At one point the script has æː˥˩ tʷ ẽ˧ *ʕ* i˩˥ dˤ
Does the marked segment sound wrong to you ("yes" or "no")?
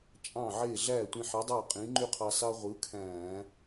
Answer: yes